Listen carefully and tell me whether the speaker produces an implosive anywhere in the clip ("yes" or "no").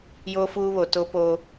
no